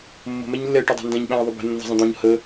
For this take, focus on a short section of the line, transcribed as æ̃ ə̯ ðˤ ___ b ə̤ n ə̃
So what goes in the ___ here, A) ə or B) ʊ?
A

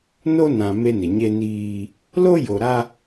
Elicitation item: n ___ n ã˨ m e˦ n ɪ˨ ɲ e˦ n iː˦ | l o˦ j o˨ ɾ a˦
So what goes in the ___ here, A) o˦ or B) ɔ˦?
A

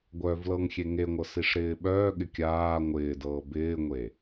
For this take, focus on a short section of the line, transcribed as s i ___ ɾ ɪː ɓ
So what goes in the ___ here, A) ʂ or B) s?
A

